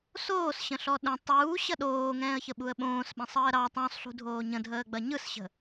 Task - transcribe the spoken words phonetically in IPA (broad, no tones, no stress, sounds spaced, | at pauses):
s oː s ɕ ə̃ ɬ ɔ ɗ ə̃ tˤ uː ɕ ɐ ɗ oː ŋ ɛ̃ː ə̯ ç ə ɓ u ə̯ ɓ õː s ɓ ɛ̃ sˤ əː ɾ ɑ tˤ õ sˤ ɬ ṳ dʱ oː ɲ ə̃ dʱ əː ɡ͡b ɐ ɲ ɯ s ɕ ə̤